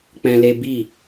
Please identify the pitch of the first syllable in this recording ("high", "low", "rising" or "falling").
high